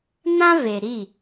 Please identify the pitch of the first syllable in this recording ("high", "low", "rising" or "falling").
high